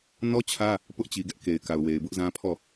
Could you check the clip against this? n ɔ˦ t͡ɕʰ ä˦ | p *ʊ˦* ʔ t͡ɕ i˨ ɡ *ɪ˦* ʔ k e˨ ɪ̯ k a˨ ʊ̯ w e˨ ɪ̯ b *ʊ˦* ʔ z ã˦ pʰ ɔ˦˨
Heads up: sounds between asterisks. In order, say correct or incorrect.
correct, incorrect: ɛ˦, correct

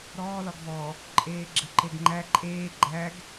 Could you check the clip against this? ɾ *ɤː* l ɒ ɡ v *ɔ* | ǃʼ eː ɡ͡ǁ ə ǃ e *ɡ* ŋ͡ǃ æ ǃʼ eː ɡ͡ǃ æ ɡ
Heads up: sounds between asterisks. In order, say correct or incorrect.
incorrect: ɔː, correct, correct

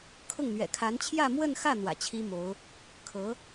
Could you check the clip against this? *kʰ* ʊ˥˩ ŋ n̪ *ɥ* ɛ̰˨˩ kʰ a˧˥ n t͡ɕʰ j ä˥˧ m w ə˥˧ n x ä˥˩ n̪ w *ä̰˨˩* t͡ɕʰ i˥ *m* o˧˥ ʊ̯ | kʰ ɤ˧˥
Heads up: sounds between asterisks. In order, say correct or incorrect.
correct, correct, correct, correct

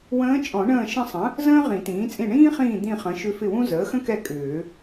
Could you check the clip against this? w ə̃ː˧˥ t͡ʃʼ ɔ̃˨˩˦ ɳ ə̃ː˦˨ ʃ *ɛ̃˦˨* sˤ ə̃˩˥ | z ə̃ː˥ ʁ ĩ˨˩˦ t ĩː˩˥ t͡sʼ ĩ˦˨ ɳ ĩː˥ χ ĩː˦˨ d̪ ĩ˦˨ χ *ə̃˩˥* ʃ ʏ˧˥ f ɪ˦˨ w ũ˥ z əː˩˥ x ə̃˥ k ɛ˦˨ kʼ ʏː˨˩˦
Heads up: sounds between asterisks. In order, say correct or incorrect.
incorrect: ə̃˦˨, correct

